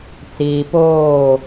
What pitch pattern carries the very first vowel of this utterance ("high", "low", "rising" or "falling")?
low